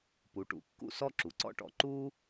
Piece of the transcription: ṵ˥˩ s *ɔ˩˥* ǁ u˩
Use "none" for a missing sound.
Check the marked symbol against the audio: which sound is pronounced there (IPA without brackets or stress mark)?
ɔ˥